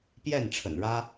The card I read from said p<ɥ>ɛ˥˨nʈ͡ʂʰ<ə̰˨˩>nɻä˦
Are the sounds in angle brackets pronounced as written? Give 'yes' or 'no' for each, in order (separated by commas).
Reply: no, yes